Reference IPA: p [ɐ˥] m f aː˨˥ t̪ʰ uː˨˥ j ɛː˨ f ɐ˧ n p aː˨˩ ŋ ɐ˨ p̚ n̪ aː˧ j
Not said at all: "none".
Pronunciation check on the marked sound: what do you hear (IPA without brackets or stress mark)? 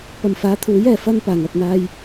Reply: ɐ˨